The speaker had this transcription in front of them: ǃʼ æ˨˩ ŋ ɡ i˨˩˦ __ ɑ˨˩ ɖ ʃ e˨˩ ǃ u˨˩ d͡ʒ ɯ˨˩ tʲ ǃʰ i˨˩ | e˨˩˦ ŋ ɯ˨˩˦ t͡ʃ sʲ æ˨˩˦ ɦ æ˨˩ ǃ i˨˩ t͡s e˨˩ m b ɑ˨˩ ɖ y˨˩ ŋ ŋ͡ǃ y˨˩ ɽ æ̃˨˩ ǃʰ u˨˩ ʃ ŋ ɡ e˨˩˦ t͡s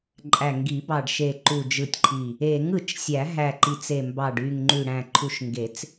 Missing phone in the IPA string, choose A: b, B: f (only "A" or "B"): A